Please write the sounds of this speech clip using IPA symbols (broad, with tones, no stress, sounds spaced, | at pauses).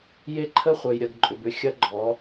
j e˦ ǃʰ ə˦ χʷ œ˨ j ɾʲ ɐ˨ ɡ ǃʼ ʏ˨ b ʏ˦ xʲ ɐ˦ ɡ͡ǃ ɔ˨˦